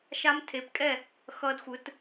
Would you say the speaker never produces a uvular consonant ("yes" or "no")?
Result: yes